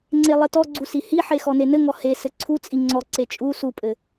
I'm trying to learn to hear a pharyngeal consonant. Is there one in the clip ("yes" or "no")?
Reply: yes